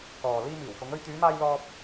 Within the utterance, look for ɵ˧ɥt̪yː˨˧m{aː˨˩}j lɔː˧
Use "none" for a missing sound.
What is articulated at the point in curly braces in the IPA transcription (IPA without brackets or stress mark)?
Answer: aː˧